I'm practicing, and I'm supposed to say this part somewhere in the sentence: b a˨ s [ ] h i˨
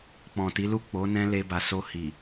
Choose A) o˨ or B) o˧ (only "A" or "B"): B